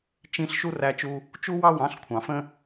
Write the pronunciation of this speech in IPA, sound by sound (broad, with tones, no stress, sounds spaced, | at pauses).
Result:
t͡ʃ ĩ˧ ɬ ʃ u˦ r æ˧ t͡ʃ u˧ | t͡ʃ u˦ w ɑ˦ w ɑ̃˨˦ ɬ kʷʰ ɑ̃˨ f ə̃˦